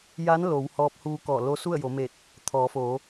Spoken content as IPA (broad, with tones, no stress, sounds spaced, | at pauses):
j a˧˥ n l o˩˧ w h ɔː˧˥ p̚ h uː˧ k ɔː˧˩ l o˧˥ s u˥˨ ə̯ j o˩˧ m eː˧˩ t̚ | t̪ʰ ɔː˩˧ f oː˩˧